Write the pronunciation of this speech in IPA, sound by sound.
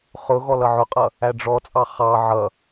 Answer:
χ ʊ ɣ ɔ l ʌ ʕ ʊ qʼ ʌ | æ ɖ͡ʐ ɔ t͡sʼ ɑ χ ɑ ʕ ʌ

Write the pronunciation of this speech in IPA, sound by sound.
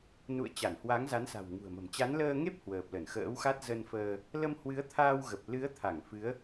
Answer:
n ṵ˧˨ ə̯ t͡ɕ a˧˩ n h w a˨˦ ŋ z a˨˦ n s a̤˨˩ w ŋ ṳ˨˩ ə̯ m ə̤˨˩ m t͡ɕ a˨˦ n l əː˧ ŋ e˦˥ p̚ h w əː˨˩ p̚ l ə˧˩ n x ə̰ː˧˥ w x a˦˥ t̚ z ə˧ n f əː˧ | l ə˧ m h w ɨ˨˦ ə̯ t̪ʰ aː˧ w ɣ ə˨˩ p̚ l ɨ˨˦ ə̯ t̪ʰ a˧˩ ŋ f ɨ˨˦ ə̯

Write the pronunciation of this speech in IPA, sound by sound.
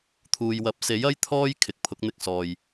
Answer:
t̪ʰ uː˨ j w ɐ˨˥ p̚ s e˨˥ j ɐ˥ j t̪ʰ ɔː˥ j kʰ ɪ˨ k̚ pʰ ʊ˨˥ k̚ n̪ ɪ˧ k̚ s ɔː˨ j

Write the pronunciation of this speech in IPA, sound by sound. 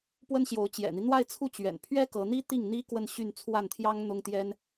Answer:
p w ə˥ n ɕ j o˧˥ ʊ̯ t͡ɕ j ɛ̰˨˩ n̪ i˦ n̪ w a˥˧ ɪ̯ t͡sʰ u˥˩ t͡ɕ ɥ ɛ̰˨˩ n pʰ ɥ ɛ˥ k ɤ˧˥ n̪ i˥ t̪ i˥˩ ŋ n̪ i˥ k w ə˥˧ n ɕ y˥˧ n t͡sʰ w a˥˩ n t̪ʰ j ɑ˥ ŋ n̪ ʊ˥ ŋ t̪ j ɛ˥ n

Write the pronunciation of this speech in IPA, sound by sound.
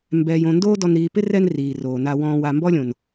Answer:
m b ɛː˨ j õ˨ n d oː˦ d ɔ˨ n ɾ iː˨ p ɪ˦ r ɛ˦ n r iː˨ r oː˨ n a˨ w ɔ̃ː˨ w a˨ m b ɔ˦ lʲ õ˨ n

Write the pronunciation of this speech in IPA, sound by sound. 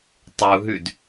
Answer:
tˤ u ɦ ʉ d

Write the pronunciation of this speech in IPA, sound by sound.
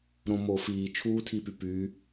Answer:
ɾ õ m o f iː t͡ʃʰ uː tʰ i p y p y

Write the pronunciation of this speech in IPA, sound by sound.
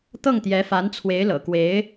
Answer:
t̪ ɤ˥˩ ŋ t̪ j ɛ˧˥ f a˧˥ n t͡sʰ w e˧˥ ɪ̯ l ɤ̰˨˩ k w e˧˥ ɪ̯

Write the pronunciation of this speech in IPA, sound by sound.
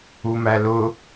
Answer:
u m æ l ʊ

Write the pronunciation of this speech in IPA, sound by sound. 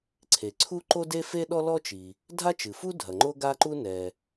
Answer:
ǀʰ e˩ ǀʰ u˥ ǃ o˥ d e˥ f e˥ ɗ ɔ˥ l ɔ˥ t͡ʃ i˩ | dʱ a˥ t͡ʃ ɨ˩ f u˥ dʱ ɐ˩ ŋ͡ǃ o˥ ɡ a˥ ǃ u˥ n ɛ˩

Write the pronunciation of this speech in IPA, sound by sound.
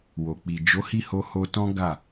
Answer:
w o˨ k͡p i˨ d͡ʒ o˨˦ h i˦˨ h o˧ h o˧ t ɔ̃˦ ɡ a˦˨

